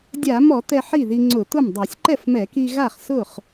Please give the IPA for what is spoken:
dʲ a˧˩˧ m ɔ˧˩˧ t̪ ɛ˧ ħ i˥˩ ð i˧ ŋ͡ǀ ʊ˧˩˧ t̪ ʊ˥˩ m dˤ a˧˩˧ sʲ ǃ ɛ˥˩ f m ɛ˧˩˧ k i˧ ɣ a˥˩ χ s ʊ˥˩ χ

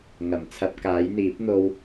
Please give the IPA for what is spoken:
ŋ ɐ˨˩ m t͡sʰ ɐ˧ p̚ k aː˨˥ j n̪ iː˨˥ p̚ n̪ o˧ w

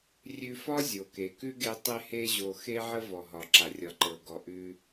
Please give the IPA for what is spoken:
rʲ ʉ˧ f ɒ˥ zʲ o˩ k e˩ k ʉ˥ ɡ e˧ tˤ e˧ h e˧ ʑ o˩ x e˧ ʕ ə˧ v ɔ˩ ɦ ɒ˩ ǁ a˩ rʲ ɒ˩ ǃ ɤ˩ ɡ ɔ˩ ʔ ʉ˧

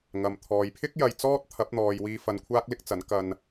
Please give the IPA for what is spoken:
ŋ ɐ˨ m t̪ʰ ɔː˨ j pʰ ɪ˥ k̚ j ɐ˧ j t͡s ɔː˥ t̚ t̪ʰ ɐ˨˥ p̚ n̪ ɔː˨ j w iː˧ f ɐ˧ n kʷʰ aː˥ k̚ l ɪ˥ k̚ t͡s ɐ˨˥ n k ɐ˧ n

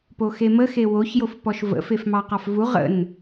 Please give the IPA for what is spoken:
p o x e m ə x e w o ç j o f p ɔ ʃ v ə̰ f e f m ɑ q ɑ f v u ʁ ə̰ n

